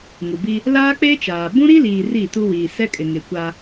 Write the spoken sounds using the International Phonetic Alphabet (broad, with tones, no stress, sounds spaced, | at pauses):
ŋ u˨ b i˦ | l aː˦ k͡p e˦ t͡ʃ aː˨ b ũ˦ ɾ i˦ l iː˨ r i˦˨ t u˦ w iː˨ s ɛ˦ kʼ ɪ˨ ŋ ɪ˨ kʷ a˦